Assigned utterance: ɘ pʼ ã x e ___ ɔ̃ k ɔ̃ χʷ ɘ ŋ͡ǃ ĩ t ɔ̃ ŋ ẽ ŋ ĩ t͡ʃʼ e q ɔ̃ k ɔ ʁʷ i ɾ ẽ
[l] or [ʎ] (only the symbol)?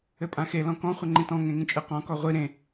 l